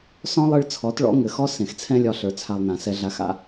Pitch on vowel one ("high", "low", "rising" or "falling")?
high